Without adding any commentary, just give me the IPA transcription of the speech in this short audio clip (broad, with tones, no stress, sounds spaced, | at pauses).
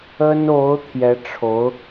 ə˥ n o˧˥ ʊ̯ t̪ʰ j ɛ˧˥ ʈ͡ʂʰ o˧˥ ʊ̯